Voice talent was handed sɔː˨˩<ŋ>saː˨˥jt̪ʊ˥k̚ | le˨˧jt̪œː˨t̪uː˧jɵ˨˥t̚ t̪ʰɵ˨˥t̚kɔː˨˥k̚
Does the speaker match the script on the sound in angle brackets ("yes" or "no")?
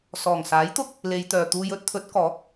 yes